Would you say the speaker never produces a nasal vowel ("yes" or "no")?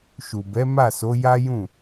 no